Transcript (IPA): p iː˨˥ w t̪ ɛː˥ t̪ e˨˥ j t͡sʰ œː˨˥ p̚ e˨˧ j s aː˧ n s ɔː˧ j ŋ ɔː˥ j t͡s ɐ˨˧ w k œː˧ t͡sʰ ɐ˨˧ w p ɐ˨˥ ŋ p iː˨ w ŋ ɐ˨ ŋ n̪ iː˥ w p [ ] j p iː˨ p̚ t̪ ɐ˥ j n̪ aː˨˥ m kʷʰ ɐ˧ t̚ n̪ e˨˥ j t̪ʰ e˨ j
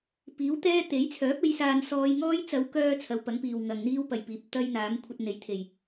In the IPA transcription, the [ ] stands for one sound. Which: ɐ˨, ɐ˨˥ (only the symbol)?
ɐ˨